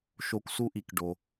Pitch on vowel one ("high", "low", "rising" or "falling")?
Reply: high